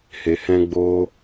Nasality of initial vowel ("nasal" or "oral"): oral